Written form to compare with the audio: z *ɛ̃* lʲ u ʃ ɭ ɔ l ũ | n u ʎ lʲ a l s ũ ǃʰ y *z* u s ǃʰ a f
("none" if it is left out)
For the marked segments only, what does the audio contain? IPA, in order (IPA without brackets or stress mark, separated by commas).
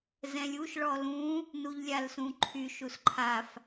ɛ̃, ʃ